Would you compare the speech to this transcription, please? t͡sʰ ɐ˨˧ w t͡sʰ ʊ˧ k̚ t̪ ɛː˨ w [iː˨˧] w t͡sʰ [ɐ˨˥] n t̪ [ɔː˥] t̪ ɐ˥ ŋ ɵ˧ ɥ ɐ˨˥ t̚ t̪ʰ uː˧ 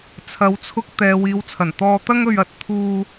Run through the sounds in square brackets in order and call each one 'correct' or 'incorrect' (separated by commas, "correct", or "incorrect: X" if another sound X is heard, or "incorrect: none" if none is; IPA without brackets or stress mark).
correct, incorrect: ɐ˨˩, incorrect: ɔː˧